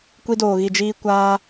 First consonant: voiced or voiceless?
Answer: voiceless